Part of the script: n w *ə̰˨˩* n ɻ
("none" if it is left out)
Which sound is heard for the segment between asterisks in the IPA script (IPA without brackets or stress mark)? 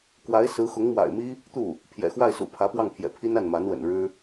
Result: ə̰˨˩